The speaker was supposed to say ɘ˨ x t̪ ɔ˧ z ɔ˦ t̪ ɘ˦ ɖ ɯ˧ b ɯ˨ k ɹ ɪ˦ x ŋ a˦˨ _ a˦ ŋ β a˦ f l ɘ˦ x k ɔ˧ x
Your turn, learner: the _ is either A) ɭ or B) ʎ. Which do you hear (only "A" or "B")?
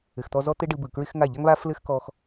B